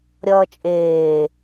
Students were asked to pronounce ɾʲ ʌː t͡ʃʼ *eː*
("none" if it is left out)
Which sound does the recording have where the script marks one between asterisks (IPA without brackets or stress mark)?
eː